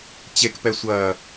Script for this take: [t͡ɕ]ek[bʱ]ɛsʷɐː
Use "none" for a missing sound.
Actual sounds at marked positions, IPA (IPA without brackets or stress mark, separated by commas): t͡ɕ, p